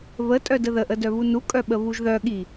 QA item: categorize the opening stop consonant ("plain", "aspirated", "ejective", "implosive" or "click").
ejective